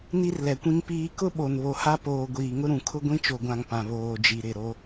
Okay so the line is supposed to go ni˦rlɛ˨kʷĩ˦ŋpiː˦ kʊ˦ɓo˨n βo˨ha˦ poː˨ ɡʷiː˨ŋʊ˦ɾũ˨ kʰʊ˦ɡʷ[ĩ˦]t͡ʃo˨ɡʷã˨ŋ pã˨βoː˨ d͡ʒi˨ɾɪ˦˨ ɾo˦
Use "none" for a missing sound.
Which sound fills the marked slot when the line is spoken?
ĩ˦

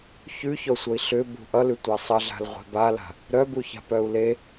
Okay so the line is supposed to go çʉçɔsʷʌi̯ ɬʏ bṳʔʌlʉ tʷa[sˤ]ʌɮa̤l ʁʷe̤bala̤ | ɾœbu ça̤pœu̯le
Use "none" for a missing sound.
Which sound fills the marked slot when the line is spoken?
sˤ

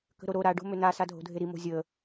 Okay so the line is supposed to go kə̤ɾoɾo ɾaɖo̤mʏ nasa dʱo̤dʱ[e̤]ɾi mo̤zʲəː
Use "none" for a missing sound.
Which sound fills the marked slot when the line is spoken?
e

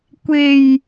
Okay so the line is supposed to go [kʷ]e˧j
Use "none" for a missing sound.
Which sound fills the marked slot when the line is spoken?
kʷ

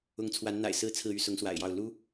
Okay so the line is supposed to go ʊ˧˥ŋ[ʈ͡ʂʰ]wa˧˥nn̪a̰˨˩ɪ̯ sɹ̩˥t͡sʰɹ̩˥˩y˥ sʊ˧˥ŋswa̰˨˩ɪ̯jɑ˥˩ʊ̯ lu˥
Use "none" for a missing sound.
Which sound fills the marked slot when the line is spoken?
t͡sʰ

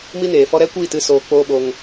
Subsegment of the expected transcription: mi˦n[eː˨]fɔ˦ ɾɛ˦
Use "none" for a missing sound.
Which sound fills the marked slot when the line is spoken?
eː˨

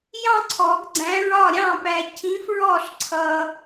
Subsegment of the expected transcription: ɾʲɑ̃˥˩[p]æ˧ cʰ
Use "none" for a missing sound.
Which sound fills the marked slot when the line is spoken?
p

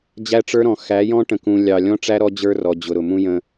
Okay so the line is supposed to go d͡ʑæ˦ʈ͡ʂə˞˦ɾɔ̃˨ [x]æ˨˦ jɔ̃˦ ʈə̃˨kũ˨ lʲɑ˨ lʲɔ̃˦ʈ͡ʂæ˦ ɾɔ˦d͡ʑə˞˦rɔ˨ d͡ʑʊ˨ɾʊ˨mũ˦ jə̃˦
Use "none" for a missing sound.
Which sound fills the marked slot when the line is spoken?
x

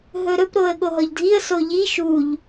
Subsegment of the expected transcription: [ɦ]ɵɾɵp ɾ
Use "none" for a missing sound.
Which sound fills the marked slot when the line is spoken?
ɦ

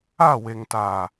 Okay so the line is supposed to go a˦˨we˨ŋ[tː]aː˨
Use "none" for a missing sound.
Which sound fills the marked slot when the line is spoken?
t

